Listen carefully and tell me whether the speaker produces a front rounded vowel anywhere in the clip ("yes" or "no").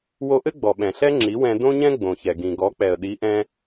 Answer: no